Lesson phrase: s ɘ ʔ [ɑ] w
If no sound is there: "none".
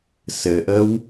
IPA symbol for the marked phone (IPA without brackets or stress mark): ə